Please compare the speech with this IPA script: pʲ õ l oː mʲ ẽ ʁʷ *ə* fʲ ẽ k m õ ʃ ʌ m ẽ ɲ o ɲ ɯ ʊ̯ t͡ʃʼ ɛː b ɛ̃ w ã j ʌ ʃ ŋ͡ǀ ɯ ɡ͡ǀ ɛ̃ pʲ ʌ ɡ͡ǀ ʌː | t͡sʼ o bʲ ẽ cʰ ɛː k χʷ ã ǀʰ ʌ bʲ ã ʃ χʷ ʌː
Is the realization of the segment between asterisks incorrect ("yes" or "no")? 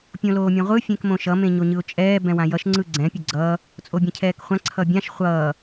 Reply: yes